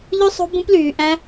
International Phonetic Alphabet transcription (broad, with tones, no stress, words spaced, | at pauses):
ʎʉ˦sˤo̤˦bũ˦plyː˧ ʔæ̃˦